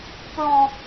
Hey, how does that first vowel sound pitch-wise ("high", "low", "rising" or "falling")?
high